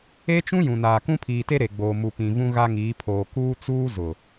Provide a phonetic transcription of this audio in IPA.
e˦ t͡ʃ ũ˦ j ũ˨ n aː˨ k ũ˦ pʰ iː˨ t e˦ ɾ e˨ ɡ͡b oː˨ m u˨ p ĩ˨ v ũ˦ ɣ a˦ ŋ iː˨˦ pʰ oː˨ k uː˦ t͡s uː˦ z ʊ˨

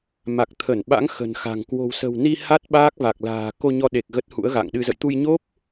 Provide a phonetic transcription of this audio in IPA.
m a˨˩ k̚ t̪ʰ ə˧˩ n ɓ a̰˧˥ ŋ x ə̤˨˩ n x a̤˨˩ ŋ k w o̤˨˩ w s ə̤˨˩ w n i˧ h a˦˥ t̚ ɓ aː˦˥ k̚ v a˨˩ k̚ l a̤ː˨˩ k o˧ ɲ ɔ˧ ɗ e˨˩ k̚ ɣ ə˦˥ t̚ h ṵ˧˥ ə̯ ɣ a̰˧˨ ŋ ɗ ɨ˧ z ə̰˧˨ j t̪ u˧ j ɲ o˦˥ p̚

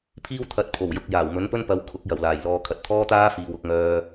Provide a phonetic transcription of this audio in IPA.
pʰ iː˥ w t̪ʰ ɐ˨˥ t̚ pʰ o˨˩ w j ʊ˨ k̚ j aː˨˩ w m ɵ˨˥ n p ɵ˥ n p ɐ˨˥ w kʰ ʊ˨˥ k̚ j ɐ˨˩ w l aː˨˩ j l ɔː˧ kʰ ɐ˧ t̚ t̪ʰ ɔː˥ t̪ aː˥ f iː˨ w ʊ˨˥ k̚ ŋ œː˧

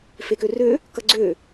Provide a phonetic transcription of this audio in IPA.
f e k ø r ø | k ʌ ɡ͡ǀ ø

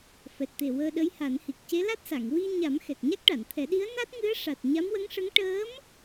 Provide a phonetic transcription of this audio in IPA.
f ɛ˨˩ t̚ t̪ e˨˩ w əː˧ ɗ ə˧˥ j h a˨˩˦ n h i˨˩ k̚ c e˧˥ l a˦˥ t̚ s a˨˩˨ ŋ w i˧ ɲ a˨˩˦ m x ɛ˨˩ k̚ ɲ a˦˥ k̚ ʈ a˨˩˨ n t̪ʰ ɛ˨˩˦ ɗ i˧˥ ə̯ n a˦˥ t̚ ŋ ɨ˧˥ ə̯ ʂ a˨˩ t̚ ɲ a˧˥ m w ə˧˥ ŋ ʂ ə˧˥ ŋ ʈ əː˧˥ m

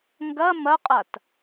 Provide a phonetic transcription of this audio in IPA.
ŋ ɡ ɐ m ɐ qʼ a t

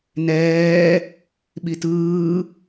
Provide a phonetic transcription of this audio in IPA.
n ɛː | ɓ i t ɯː

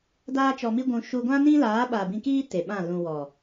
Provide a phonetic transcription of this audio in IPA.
d aː˦ t͡ʃ ɔ˧ m i˦ ɡʷ ũ˧ ʃ u˧ ɡʷ ã˦ n ĩ˦ l aː˨˦ ɓ a˨ b ĩ˧ k iː˦ t e˨ ɓ ã˦˨ l ũ˨ w ɔ˨

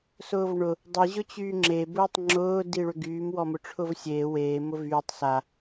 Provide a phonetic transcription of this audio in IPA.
s ʊː v ɳ ʊ | dˤ i ʑ ʊ t͡ɕ yː ŋ͡ǁ e b ʊː tˤ ŋ͡ǁ ʊː d i ɭ ʏ ɡ yː m w ɔ m ʊ ʈ͡ʂʰ ʊ v sʲ eː w eː m ʊ v yː tˤ s a

